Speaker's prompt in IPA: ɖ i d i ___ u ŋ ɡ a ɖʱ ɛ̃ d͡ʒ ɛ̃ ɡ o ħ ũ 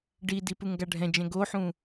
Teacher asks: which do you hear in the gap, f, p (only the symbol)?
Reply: p